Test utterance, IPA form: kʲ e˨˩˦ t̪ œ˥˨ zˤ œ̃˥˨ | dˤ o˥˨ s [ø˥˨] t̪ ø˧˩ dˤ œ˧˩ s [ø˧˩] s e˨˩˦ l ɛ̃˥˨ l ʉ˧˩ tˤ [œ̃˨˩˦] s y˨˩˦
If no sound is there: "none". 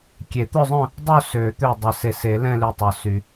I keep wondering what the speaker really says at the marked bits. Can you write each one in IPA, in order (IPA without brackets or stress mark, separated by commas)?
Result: ø˨˩˦, e˧˩, œ˨˩˦